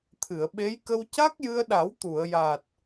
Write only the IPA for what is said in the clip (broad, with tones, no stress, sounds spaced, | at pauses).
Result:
t̪ʰ ɨ˨˩˨ ə̯ ɓ e˧˥ j k ə˧ w c a˦˥ k̚ j ɨ˧ ə̯ ɗ a˨˩˦ w t̪ u˨˩˨ ə̯ j a˨˩ t̚